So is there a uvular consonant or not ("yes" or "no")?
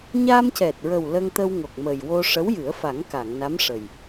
no